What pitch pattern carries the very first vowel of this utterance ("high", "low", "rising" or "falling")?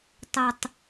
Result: low